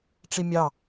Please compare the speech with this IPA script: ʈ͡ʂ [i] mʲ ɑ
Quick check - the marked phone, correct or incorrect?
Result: correct